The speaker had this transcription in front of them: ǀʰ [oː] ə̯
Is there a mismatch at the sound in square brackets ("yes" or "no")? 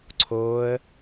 no